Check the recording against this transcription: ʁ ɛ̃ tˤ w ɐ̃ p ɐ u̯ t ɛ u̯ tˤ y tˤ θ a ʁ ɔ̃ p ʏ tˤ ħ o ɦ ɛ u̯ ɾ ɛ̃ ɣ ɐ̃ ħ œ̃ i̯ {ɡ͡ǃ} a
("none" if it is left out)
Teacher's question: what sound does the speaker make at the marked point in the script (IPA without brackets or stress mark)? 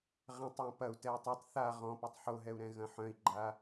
ɡ͡ǃ